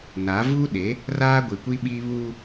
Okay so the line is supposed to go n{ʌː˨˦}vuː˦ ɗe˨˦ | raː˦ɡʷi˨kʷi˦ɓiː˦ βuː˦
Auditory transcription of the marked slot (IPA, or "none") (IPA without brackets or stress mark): aː˨˦